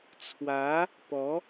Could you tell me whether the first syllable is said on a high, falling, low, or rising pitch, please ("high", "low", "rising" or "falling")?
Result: rising